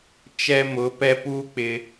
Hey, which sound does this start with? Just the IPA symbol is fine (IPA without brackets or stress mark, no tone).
t͡ʃ